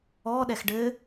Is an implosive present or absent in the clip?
present